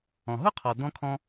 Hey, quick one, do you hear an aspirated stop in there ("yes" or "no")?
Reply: yes